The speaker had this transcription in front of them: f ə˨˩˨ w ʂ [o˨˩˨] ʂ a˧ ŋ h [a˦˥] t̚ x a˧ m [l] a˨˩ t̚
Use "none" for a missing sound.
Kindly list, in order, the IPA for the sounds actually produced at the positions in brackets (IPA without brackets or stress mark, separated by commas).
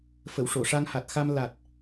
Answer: o˨˩˨, a˨˩, l